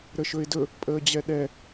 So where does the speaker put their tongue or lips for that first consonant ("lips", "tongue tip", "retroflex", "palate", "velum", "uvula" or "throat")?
tongue tip